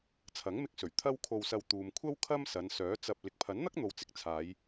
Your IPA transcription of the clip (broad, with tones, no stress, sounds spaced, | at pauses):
t͡sʰ ɐ˨˥ ŋ m ɪ˧ k̚ s ɵ˨˩ ɥ t̪ʰ ɐ˥ w kʰ o˧ w s ɐ˧ w t̪ uː˨ m kʷʰ ɐ˥ w kʰ ɐ˥ m s ɐ˨˧ n s œː˨˥ t͡s ɐ˧ p̚ l ɪ˨ k̚ pʰ ɐ˨˥ n n̪ ɐ˥ k̚ n̪ o˨ w t͡s ɪ˨ k̚ t͡sʰ aː˨˧ j